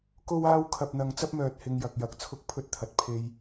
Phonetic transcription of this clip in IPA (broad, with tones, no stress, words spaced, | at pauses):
ko˥waː˥w kʰɐ˨p̚n̪ɐ˨ŋ t͡sɐ˥p̚mœː˨t̚ hɪ˧ŋjɐ˨k̚jɐ˨k̚ t͡sʰʊ˥k̚pʰɵ˥t̚t̪ʰɐ˧t̚ pʰe˧j